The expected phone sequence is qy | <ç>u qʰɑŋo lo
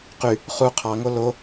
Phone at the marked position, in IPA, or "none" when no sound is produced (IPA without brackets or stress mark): χ